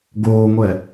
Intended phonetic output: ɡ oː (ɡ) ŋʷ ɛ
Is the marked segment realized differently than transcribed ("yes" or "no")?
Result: yes